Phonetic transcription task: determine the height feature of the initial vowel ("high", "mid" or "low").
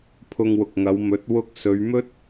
high